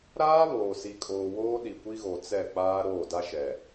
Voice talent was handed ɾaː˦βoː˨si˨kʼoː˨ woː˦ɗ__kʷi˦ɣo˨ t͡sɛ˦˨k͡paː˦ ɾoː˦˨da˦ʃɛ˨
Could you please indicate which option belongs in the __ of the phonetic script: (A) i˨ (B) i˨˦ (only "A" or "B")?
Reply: A